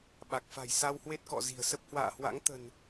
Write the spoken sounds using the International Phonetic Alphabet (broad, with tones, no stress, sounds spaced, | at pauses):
ɓ a˨˩ k̚ f a̤˨˩ j s a˧ w h w e˦˥ t̚ k ɔ̰˧˨ z i̤˨˩ ə̯ s ə˦˥ p̚ h w a̰ː˧˨ h w a̰˧˥ ŋ t̪ ə̤˨˩ n